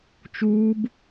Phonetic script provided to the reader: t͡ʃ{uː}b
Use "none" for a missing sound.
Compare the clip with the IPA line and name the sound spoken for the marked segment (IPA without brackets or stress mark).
uː